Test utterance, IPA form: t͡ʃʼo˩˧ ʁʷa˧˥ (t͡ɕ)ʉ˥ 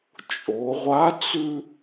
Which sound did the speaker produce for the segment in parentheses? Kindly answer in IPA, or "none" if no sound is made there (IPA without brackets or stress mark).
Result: t͡s